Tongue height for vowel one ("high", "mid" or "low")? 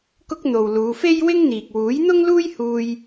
high